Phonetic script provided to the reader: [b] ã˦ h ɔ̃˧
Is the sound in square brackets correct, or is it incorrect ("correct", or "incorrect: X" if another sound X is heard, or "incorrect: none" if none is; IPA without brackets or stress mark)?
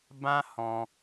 correct